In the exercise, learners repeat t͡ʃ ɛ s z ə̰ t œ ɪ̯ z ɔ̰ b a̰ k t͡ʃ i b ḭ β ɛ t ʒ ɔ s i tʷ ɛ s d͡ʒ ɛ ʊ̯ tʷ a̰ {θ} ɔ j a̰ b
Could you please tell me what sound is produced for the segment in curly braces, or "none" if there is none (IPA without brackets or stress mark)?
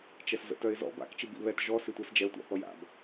θ